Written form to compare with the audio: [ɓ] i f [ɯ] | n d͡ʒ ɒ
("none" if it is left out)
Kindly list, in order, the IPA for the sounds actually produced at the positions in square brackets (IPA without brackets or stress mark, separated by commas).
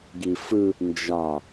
ɡ, ɯ